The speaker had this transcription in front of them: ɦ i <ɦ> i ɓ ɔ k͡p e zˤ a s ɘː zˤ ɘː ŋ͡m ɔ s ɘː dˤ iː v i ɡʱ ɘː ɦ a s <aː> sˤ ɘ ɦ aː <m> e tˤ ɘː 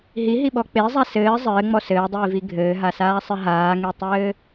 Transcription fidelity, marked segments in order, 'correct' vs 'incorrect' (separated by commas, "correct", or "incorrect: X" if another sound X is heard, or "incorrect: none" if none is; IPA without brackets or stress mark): correct, correct, incorrect: ŋ